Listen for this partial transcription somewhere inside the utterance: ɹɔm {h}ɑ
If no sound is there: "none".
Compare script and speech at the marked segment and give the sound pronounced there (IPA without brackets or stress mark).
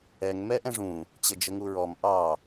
ʔ